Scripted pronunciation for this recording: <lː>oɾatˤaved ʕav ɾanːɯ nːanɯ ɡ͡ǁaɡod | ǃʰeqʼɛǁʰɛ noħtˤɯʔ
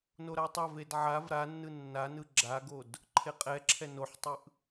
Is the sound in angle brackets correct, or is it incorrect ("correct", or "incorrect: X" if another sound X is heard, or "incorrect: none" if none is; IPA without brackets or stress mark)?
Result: incorrect: n